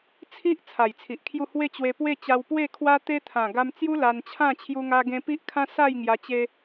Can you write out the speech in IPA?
t͡sʰi˦ʔ t͡sʰa˨˩jt͡sʰi˨ʔkʰju˥˧ hwe˥˧t͡ɕwe˧ pwe˥˧ t͡ɕa˧wpwe˥˧kʰwa˦t̪e˦ t̪ʰã˨˩ɡa˧mt͡sju˦ la˧nt͡ɕʰã˥˧ t͡ɕʰju˦ŋa˦ɡẽ˦ pi˦ʔkʰã˦ sa˥˧jŋja˧t͡ɕe˧

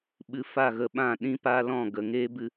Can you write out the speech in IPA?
ɓɨ˧fa˦˨ɣə˧ɓã˦˨ ɗĩ˦ pa˦lɔ̃˦˨ɡə˨ ŋeː˦bɨ˧

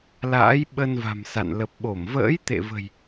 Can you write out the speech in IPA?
la̰ː˧˥j ɓə˧nva̤˨˩msa̰˧˨n lə˨˩p̚ɓo˧˩m və̰ː˧˥jt̪ḛ˧˨və̤˨˩j

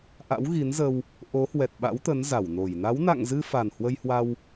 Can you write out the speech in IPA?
ʔa̰˧˥wɣi˨˦nzə˧w | ʔo˨˦hwɛ˨˩t̚ɓa̰˧˥wt̪ə˨˦n za˧˩wno˧˩j na˨˦wna̰˧˨ŋzɨ˧ fa˨˩nhwə˧jhwa˧w

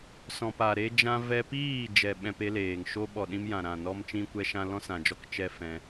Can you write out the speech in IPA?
sɔ̃˨pa˨ɾe˧d͡ʒã˧ vɛ˧piː˦˨ d͡ʒɛ˧ɓɛ̃˧pe˦leː˨ŋ ʃo˧ɓɔ˨ ɗĩ˧mjã˨ ɾã˨nɔ˧m t͡ʃĩ˧kʷɛ˧ʃã˧ lɔ̃˦sã˨d͡ʒɔ˦k t͡ʃɛ˦fɛ̃˧

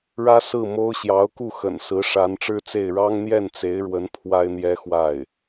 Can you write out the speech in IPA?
ɻä˥ sɹ̩˥˩mo˥ʊ̯ ɕjɑ˧˥ʊ̯ku˥˩xə̰˨˩nsɹ̩˧˥ ʂa˧˥nʈ͡ʂɻ̩˥t͡se˥˩ɪ̯ ɻɑ˥ŋn̪jɛ˥˩nt͡se˧˥ɪ̯ɻwə˧˥n pʰwa˥ɪ̯n̪jɛ˥ xwa˥˩ɪ̯

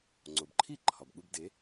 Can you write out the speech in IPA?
ŋ͡ǀo˩bǃʰi˥˩ ǃʰɒ˩bɠu˧b de˩˥

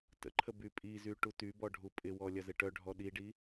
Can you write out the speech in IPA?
tə̰ǃʰə bypʼizy ʈutybɔ ɖʱupʼɪwɔ lʲɐzɪʈœɖʱɔ ɗiɖi

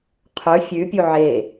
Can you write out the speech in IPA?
qʰɵ fʲʉpʲu ʕe

